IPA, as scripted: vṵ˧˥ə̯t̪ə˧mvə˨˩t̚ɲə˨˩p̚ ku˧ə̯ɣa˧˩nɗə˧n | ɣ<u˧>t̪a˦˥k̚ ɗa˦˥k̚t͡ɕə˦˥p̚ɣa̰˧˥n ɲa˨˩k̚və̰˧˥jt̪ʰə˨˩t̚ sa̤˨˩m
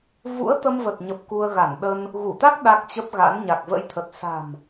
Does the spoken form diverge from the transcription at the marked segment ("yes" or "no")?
yes